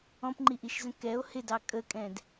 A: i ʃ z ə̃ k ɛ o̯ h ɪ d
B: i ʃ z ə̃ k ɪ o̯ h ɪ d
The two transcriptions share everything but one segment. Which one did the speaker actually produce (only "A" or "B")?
A